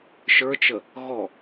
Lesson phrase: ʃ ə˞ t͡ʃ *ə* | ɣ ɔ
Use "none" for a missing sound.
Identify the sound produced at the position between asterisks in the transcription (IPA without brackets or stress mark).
ə